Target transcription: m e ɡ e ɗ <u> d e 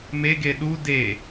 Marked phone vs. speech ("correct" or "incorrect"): correct